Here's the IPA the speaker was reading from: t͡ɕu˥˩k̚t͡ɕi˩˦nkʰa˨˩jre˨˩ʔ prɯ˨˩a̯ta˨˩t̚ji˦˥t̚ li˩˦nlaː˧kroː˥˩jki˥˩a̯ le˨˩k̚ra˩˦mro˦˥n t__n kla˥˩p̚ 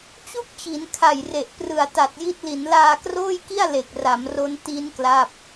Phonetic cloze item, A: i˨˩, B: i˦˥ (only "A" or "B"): B